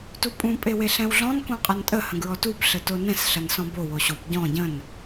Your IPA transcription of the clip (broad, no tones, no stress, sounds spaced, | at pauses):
t u pʼ ũ pʼ e w e ɬ ɛ̃ w ɮ ɔ̃ n k ũ qʼ ɐ n tʼ ə h ə̃ ɡ ɹ ɔ t u b ɬ ə t o n ɛ̃ s ɬ ɐ n s ɔ̃ b o w o ɕ u b ɟ ɔ̃ ɟ ə̃ n